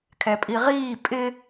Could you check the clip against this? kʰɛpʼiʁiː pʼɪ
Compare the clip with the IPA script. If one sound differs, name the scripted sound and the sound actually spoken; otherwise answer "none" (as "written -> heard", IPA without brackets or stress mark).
none